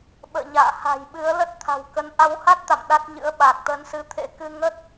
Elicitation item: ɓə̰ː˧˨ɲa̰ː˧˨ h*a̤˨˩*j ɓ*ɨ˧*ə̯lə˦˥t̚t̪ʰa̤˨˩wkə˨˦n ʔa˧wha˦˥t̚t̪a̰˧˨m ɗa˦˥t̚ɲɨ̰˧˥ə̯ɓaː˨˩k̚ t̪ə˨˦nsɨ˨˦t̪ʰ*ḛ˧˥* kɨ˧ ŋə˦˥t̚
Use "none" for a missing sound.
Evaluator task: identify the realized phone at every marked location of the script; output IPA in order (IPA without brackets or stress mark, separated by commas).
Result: a̤˨˩, ɨ˨˦, ḛ˧˥